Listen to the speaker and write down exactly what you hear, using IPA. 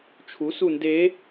t͡ʃʰ u s u n d e

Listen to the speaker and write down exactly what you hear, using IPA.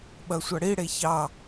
ɓ ɐ sʷ ɐ ɽ i ɽ e ç ɑ

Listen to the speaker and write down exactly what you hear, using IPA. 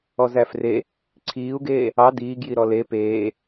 ɔ z æ f r e | ǀʰ iː u̯ ɡ eː | ɑ d iː ɡ j i ɾ ɔ l e p eː

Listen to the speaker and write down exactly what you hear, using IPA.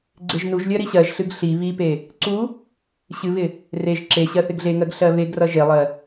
ɡ͡ǀ e ʒ n u ʒ lʲ ɜ ɾ i ɕ ɜ ʒ ɬ ɨ ɡ ɬ i β i p e | ǀ u | ɕ ɨ β ɪ | r e ʒ ǁ e ɕ ɜ θ ɪ ɡ ɮ e ŋ ɜ ɡ ɬ ɜ β e ɡ r ʌ ʒ e lˠ ɜ

